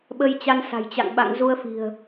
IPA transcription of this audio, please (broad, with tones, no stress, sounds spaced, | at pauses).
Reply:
ɓ ə˧ j t͡ɕ a˧ n s a̤˨˩ j t͡ɕ a̰˧˨ ŋ ɓ a̰˧˨ ŋ z u˧ ə̯ f i̤˨˩ ə̯